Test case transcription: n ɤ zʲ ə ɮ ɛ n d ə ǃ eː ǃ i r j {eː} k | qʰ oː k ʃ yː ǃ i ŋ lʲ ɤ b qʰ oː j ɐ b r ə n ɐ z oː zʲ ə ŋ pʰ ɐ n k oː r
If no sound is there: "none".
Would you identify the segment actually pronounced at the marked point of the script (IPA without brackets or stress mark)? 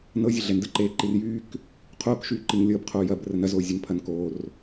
yː